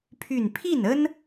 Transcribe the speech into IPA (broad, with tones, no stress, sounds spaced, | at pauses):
pʰ y˥˧ n pʰ i˥˩ n ə˥ n